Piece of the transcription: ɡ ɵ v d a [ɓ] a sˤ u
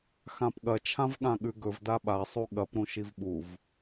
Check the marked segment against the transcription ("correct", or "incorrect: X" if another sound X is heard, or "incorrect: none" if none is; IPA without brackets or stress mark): correct